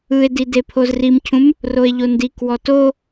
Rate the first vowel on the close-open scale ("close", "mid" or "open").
close